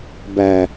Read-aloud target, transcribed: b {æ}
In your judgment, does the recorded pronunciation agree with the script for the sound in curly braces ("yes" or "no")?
yes